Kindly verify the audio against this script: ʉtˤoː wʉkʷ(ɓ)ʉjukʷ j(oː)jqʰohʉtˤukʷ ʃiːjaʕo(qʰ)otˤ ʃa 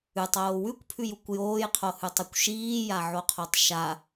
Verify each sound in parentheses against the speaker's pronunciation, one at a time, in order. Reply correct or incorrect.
incorrect, correct, correct

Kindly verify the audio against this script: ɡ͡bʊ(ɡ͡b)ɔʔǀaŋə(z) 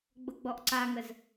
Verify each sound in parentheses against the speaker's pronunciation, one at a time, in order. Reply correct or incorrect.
correct, correct

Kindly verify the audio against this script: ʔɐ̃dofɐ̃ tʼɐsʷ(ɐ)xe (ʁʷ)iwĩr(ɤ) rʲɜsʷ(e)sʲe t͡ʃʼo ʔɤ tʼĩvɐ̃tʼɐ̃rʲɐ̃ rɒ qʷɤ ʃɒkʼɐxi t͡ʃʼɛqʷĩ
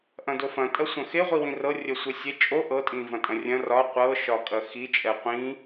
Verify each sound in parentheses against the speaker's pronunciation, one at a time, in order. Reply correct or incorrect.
incorrect, correct, correct, correct

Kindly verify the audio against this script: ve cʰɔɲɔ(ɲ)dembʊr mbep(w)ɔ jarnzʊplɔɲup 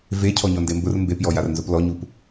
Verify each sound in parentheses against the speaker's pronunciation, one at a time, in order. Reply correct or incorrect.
incorrect, incorrect

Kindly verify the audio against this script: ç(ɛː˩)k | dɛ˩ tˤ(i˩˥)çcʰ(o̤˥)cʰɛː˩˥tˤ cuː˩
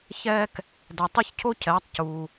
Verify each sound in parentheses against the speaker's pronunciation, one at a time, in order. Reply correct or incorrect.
incorrect, incorrect, incorrect

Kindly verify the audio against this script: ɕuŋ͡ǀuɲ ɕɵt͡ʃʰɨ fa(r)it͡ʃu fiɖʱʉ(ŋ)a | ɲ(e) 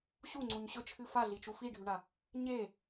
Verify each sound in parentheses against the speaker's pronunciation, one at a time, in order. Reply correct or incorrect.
incorrect, incorrect, correct

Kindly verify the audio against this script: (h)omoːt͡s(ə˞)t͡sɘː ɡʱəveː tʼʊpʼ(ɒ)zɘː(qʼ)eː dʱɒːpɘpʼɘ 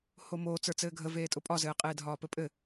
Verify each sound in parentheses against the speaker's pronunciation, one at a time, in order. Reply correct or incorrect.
correct, correct, correct, correct

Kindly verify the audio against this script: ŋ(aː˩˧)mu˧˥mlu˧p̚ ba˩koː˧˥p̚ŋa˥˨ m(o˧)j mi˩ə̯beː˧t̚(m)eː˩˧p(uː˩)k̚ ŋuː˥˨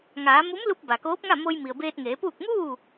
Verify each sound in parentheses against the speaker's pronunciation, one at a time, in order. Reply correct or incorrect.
correct, correct, incorrect, incorrect

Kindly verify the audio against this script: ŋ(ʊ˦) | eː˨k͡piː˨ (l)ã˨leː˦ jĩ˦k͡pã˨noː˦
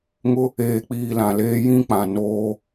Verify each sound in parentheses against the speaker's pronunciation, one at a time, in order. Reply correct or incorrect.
correct, correct

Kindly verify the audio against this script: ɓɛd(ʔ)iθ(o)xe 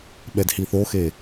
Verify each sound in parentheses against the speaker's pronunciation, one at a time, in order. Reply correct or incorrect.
incorrect, correct

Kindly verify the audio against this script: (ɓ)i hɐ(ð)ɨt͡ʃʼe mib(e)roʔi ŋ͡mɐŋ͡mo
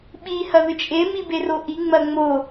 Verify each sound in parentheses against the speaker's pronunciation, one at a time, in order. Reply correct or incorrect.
correct, correct, correct

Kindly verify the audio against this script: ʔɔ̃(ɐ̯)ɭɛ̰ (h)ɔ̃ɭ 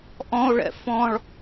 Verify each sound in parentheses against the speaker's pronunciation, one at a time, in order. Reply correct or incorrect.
incorrect, incorrect

